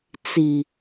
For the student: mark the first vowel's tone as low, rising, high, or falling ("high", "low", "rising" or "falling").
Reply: low